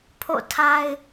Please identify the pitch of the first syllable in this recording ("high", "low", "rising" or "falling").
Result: falling